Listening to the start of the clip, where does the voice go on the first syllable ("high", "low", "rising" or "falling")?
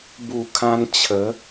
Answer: low